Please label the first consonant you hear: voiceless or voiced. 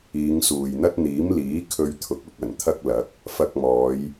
voiced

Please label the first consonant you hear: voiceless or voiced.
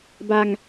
voiced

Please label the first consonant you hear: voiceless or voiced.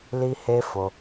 voiced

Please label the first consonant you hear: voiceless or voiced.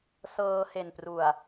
voiceless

